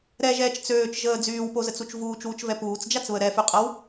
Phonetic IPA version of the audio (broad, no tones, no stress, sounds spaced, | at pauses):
ɾ ɛ ʒ ɛː t͡ʃ t͡s øː t͡ʃ ʒ əː d͡z yː w p o z ə t͡s u t͡ʃ v uː t͡ʃ w u t͡ʃ v ɛ p uː t͡s d͡ʒ a t͡s β ə ɾ ɛ f y qʼ ə w